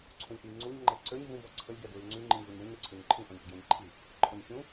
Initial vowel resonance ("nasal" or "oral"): nasal